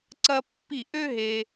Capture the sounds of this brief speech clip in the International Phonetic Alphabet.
ǀɐ˥pːi˥˧ ʔø˥ɦe˧

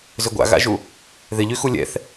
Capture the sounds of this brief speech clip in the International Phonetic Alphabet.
zʏɡʷa̰ɣa̰ʒu | ðɪʎy xulʲɛ̰θ

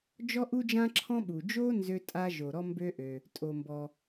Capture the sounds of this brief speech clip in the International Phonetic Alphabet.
d͡ʒɔ˥ʔu˥d͡ʒã˥ǁʰɔ̃˥ ɓu˩d͡ʒo˥ nzø˥tʼa˥ ʒo˩ɾɔ˥mbø˥ʔø˩ | tʼo˩mbɔ˩

